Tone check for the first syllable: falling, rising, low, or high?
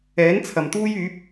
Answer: rising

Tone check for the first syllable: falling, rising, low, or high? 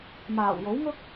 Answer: low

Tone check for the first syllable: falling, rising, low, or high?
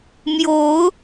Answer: rising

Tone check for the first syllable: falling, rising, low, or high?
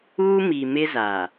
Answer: high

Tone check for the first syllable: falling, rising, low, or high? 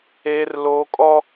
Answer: high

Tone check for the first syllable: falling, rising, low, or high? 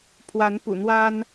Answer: rising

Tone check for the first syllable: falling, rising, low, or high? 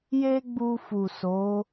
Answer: high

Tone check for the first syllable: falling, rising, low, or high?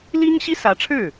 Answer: high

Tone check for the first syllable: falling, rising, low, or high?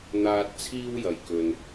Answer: high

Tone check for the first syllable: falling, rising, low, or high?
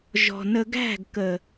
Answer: low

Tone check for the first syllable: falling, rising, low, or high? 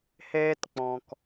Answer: high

